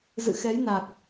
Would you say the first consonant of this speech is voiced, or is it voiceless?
voiced